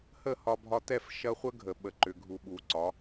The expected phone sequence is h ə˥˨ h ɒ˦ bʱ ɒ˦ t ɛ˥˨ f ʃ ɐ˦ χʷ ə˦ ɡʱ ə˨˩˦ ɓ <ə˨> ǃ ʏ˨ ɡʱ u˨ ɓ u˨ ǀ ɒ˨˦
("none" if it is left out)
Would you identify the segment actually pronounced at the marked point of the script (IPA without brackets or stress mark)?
ə˨